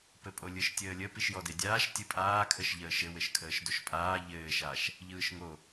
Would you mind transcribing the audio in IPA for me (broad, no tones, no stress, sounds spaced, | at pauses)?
p ɘ pʼ o lʲ ɯ ʃ tʲ əː lʲ ə p i ʃ j ɔ d e dʲ aː ʃ tʲ ɯ pʼ aː kʰ ə ʃ ʎ əː ʃ ɘ w ɘ ʃ kʰ əː ʃ d o ʃ pʼ aː ʎ ɘː ʃ a ʃ | ʎ ɯː ʃ ŋ o